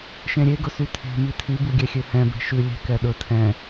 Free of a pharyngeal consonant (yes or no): yes